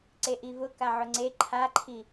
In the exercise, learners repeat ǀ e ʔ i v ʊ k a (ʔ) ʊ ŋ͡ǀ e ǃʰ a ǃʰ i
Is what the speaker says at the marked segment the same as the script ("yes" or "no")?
no